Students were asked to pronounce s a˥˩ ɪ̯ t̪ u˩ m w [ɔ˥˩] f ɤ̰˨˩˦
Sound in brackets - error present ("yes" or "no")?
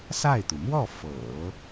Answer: no